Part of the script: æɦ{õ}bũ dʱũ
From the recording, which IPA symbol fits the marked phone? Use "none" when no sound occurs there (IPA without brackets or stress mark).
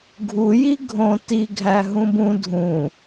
ũ